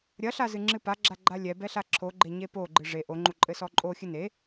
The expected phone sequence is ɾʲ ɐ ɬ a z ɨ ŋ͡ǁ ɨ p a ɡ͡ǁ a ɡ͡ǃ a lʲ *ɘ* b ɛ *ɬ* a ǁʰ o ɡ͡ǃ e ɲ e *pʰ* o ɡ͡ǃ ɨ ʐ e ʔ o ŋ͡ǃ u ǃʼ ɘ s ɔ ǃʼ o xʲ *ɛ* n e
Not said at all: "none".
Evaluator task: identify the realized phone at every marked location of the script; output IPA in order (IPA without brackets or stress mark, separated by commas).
ɛ, ɬ, p, ɨ